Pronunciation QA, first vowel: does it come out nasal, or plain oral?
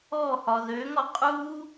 oral